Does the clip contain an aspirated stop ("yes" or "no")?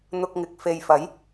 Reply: no